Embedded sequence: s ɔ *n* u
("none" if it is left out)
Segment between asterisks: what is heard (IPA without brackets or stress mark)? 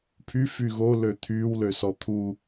t̪ʰ